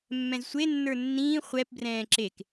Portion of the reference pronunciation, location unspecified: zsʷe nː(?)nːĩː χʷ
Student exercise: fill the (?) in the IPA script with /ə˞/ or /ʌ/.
ə˞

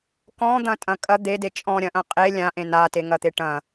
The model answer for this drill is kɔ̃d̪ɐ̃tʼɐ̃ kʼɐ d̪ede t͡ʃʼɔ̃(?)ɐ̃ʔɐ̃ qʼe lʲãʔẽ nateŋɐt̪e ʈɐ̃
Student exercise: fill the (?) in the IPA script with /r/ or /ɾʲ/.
ɾʲ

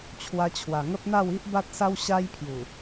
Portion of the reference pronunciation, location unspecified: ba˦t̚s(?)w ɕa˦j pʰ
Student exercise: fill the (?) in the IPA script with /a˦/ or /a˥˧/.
a˦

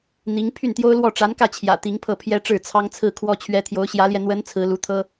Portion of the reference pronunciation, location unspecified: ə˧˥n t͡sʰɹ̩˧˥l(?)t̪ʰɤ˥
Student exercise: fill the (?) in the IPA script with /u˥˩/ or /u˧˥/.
u˧˥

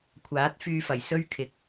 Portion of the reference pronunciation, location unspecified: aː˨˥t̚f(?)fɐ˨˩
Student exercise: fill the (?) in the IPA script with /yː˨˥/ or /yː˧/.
yː˧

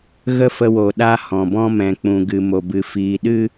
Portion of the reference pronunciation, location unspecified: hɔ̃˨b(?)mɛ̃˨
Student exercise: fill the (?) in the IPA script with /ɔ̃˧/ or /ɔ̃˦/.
ɔ̃˦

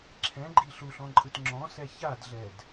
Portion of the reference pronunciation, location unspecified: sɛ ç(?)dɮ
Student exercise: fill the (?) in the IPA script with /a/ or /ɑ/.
a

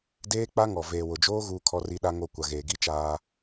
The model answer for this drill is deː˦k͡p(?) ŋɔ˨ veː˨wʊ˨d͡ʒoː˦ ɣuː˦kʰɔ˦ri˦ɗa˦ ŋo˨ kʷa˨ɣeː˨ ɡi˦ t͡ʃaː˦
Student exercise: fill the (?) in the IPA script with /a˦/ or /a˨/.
a˦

